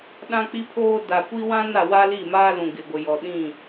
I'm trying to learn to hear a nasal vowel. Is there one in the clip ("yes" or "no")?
yes